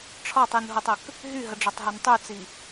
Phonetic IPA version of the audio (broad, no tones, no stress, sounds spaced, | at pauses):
ʈ͡ʂʰ ɒ tˤ i n ɦ o tˤ ə k | ɦ y ɦ ə ɖ͡ʐ ɒ tˤ ɦ œ n tˤ y t͡s i